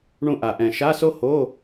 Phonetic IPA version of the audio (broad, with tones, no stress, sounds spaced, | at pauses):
ɳ ũ˦˨ ʔ a˨˩ ʔ ɛ̃˨˩ ʃ a˧˥˧ s o˥ h o˧˥˧